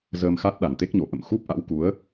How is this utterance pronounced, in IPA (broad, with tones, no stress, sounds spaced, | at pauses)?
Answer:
z əː˧ m x a˦˥ t̚ ɗ a˨˩ n t̪ e˦˥ k̚ ɲ o˨˩ ʔ ə̰˧˨ m x u˦˥ p̚ ʔ a̰˧˥ w k u˨˦ ə̯